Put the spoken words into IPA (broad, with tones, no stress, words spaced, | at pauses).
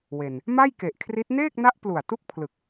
we˨˩n | ma˥˩jke˨˩ʔkʰri˦˥t̚ neː˥˩k̚na˦˥ʔ plu˨˩a̯ tu˥˩k̚pʰlɯ˨˩k̚